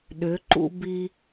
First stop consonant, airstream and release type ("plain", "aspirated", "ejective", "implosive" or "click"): implosive